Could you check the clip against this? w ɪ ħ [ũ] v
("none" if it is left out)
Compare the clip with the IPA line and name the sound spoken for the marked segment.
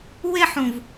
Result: ũ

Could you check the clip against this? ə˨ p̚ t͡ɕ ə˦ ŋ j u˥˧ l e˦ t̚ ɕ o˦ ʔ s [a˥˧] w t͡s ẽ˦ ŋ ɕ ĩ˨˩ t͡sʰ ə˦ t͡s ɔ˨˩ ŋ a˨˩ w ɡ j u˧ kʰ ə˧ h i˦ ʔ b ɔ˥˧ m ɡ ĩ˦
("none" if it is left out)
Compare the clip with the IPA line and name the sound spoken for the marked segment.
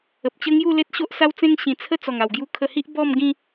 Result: a˦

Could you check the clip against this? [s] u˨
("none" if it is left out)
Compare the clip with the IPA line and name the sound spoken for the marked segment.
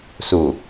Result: s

